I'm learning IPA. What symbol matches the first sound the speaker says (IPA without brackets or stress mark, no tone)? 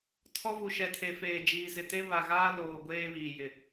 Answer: tʰ